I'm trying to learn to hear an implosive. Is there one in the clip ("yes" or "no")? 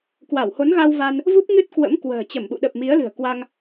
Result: yes